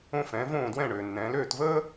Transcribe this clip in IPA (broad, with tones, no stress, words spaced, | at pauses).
õ˥˩fɛ̃˩˥võː˥˩ dwɛ̃˥˩ɳøː˩nːɛ̃ː˩˥l øː˥˩tvəː˥